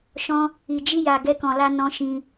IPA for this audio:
ʃ ɔ̃˦ | i˨ d͡ʒ i˧ j a˨ ɡ ɛ˧ k ɔ̃˨ l a˧ n ɔ̃˧ ʃ ĩ˧

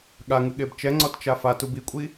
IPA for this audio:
ɠ a ŋ ɨ ɠ e b t͡ʃ ɛ ŋ͡ǀ ɔ t t͡ʃ a f a t u b i kʷʼ i

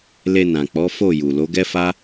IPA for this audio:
l e˧ n ã˨ k͡p ɔ˨˦ f o˦˨ j u˨ l o˨˦ ɡ ɛ˦ f a˦

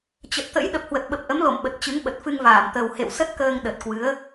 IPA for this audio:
t͡ɕ ə˨˩ t̚ t̪ ə̰˧˥ j ɗ ə˨˩ p̚ h w ə˨˩ t̚ ɓ ə˨˩ p̚ ʔ ə˨˦ m l o̰˧˨ m ɓ ə˨˩ t̚ t͡ɕ ɨ˨˦ ŋ ɓ ə˨˩ t̚ f ɨ˧ ŋ v aː˧˩ m t̪ ə˨˩ w h ḛ˧˨ w s ə˦˥ t̚ k əː˧ ŋ ɗ ə˨˩ t̚ k w ɨ˨˦ ə̯

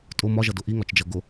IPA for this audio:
tʼ ʊ m ɒ ʒ ʌ d ʊ ʔ i ŋ ɒ t͡ʃ d͡ʒ ʌ ɡ ʊ

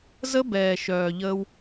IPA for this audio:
z ə˦ b ɛː˨ ʃ œː˨ ʎ ə˧ w

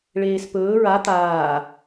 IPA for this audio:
ɭ eː s p ɵː ɹ a t̪ aː

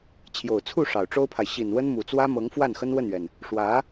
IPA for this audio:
t͡ɕʰ j o˨˩ ʊ̯ t͡sʰ u˥˩ ʂ ɑ˨˩ ʊ̯ ʈ͡ʂ o˥ ʊ̯ pʰ a˨ ɪ̯ ɕ i˨˩ n w ə˥ n m u˨˩ t͡s w ä˥ m ɤ˧˥ ŋ f w a˥˩ n x ə˥ n w ə˥˩ n ɥ ɛ˩ n | ʂ w ä˧˥

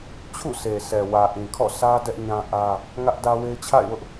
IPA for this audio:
t͡ɕʰ ṵ˦˨ s e˨ s ɛ˨ w ä˨ ʔ ĩ˨ kʰ ɔ̰˦˨ s ä˦ d ɛ˦ ʔ ɲ ã˦ ʔ ä˦ | ŋ ä˦ ʔ d ä˦ w e˦ ɪ̯ t͡ɕʰ a̰˦˨ ɪ̯ w ʊ˦ ʔ

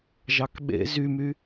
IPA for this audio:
ʒ ɑ k ɓ ḛ z y m y

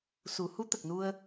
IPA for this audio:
s u˨˩˦ h u˧˥ t̪ ə˨˩ k̚ n u˧ ə̯

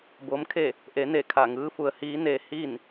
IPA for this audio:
b oː˧˥ m kʰ e˥˨ | ʔ e˩˧ n e˧˩ kʰ a˧˩ ŋ ɯː˧˥ f u˩˧ ə̯ h iː˧˥ n e˧ h i˥˨ n

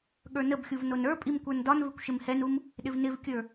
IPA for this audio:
ɠ ə˞ n ə b xʲ u v n o n ə˞ pʼ i m kʷ ə˞ n d ɒ n v ɪ kʷ ʃ ɪ m h ɛ n u m | ɗ ɪ v n ɪ v kʲ ə˞

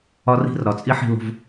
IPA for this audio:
ɒ˦ r i̤˦ r ɾ ɒ˨ t͡sʼ i˦ ħ i̤˧ l o̤˧ v

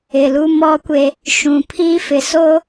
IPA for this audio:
ɪ˨ l u˦ m ɔ˦ kʷ e˦ | ʃ ũ˨ pʰ iː˦ f ɪ˨ s o˦

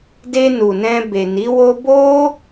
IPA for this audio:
d e˧ n u˨ n ɛ̃˧ b e˨ n i˨˦ w o˦ b o˦

